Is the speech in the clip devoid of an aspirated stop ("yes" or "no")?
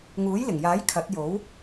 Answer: no